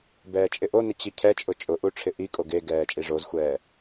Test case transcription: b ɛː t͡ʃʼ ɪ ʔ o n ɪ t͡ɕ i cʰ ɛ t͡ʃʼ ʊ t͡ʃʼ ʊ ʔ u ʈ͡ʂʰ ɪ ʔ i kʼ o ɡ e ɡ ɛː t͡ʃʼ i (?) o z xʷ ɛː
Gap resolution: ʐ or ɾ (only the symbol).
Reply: ʐ